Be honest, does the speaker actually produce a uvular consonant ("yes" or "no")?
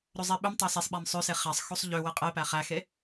yes